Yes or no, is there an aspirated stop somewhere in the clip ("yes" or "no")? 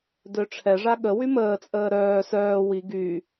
yes